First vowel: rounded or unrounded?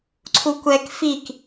rounded